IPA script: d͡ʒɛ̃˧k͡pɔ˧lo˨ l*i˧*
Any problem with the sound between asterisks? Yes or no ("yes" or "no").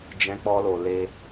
yes